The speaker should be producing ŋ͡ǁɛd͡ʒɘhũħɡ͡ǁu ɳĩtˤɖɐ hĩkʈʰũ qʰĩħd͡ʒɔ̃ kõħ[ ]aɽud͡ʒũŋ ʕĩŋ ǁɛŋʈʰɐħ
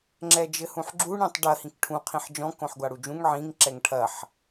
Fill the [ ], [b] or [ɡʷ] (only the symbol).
ɡʷ